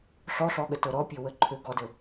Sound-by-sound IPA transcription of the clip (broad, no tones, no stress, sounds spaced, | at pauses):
ɬ ɔ ɬ ɔ ɠ ə t ɤ ɾ ɔ pʲ ø w ə ǃʰ ø ɡ ɔ d ə